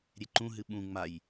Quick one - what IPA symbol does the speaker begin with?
ɾʲ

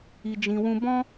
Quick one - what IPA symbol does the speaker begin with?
i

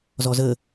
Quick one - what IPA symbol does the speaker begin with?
z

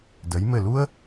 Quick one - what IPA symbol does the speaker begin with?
d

